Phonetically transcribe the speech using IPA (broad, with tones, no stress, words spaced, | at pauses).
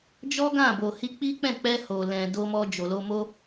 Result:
d͡ʒɔ˦ɡã˦˨bo˨ hi˧k͡pi˦k͡pɛ̃˦˨ k͡pɛ˧ ho˨lɛ̃˨ do˧mɔ˧ d͡ʒo˨lo˧mo˦